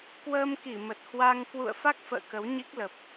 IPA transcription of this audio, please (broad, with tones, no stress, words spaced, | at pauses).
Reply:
kwəː˧mki˧˩mə˨˩t̚ hwa˧ŋ kwṵ˧˨ə̯ fa˦˥k̚fə̰ː˧˨ kə˨˦wɲi˦˥k̚lə˨˩p̚